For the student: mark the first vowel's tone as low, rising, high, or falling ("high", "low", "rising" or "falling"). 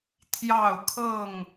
falling